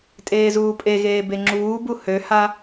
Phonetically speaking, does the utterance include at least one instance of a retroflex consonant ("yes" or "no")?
no